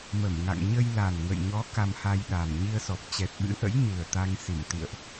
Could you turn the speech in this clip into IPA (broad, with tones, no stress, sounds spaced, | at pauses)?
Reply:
m ə˧˩ m ŋ a̰˧˨ ŋ ɲ ə˧ j l a˨˩ n ŋ ə̰˧˨ j ɲ ɔ˨˦ k a˧ m h a˧ j ɗ a˨˩ m ɲ i˧ ə̯ s ɔ˨˩ p̚ t͡ɕ ɛ˨˩ t̚ ɓ ɨ̰˧˥ ʔ ə̰˧˥ j ɲ ɨ˨˩ ə̯ t̪ a˧ ŋ s i˧˩ m t̪ ḭ˧˨ ə̯ ʔ